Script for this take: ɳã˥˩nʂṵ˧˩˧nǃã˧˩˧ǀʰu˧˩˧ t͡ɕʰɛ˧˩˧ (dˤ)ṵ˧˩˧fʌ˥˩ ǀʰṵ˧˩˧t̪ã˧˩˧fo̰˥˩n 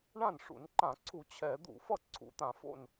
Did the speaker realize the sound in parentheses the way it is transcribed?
no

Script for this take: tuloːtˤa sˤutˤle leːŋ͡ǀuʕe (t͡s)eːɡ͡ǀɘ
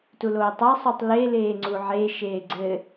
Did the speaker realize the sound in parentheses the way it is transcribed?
no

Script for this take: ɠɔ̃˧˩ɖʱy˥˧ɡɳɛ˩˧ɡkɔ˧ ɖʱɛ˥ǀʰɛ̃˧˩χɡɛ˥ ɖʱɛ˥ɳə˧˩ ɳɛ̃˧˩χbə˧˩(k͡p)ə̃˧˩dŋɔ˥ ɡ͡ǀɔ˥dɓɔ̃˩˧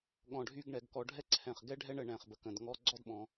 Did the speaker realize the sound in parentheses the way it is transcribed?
no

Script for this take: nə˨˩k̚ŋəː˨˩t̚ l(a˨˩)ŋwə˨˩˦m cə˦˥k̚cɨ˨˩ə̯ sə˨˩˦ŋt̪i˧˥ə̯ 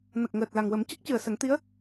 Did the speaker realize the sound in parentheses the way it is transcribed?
yes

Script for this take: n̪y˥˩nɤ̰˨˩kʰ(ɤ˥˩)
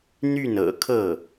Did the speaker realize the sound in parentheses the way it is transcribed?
yes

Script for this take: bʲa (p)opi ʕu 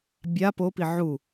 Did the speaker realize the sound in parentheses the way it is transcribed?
yes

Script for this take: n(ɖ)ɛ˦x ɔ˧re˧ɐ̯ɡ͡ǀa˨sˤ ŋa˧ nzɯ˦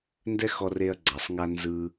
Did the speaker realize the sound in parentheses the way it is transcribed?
no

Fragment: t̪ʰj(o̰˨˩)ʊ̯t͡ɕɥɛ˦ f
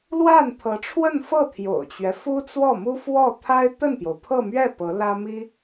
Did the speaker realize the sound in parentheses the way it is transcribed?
yes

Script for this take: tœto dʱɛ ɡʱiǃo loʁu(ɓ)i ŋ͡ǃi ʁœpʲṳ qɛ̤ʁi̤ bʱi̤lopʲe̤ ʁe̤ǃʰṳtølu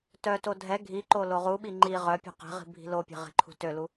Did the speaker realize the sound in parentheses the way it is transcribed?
yes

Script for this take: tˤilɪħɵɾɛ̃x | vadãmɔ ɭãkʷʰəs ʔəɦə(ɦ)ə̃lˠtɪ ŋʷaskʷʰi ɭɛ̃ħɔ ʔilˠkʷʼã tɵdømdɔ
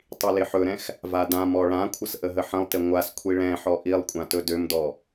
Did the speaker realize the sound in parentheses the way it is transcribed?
no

